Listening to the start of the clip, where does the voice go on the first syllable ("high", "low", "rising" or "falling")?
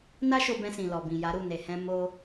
high